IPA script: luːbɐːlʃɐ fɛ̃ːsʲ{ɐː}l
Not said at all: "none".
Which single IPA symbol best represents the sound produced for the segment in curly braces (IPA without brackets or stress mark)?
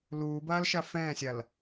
ɐ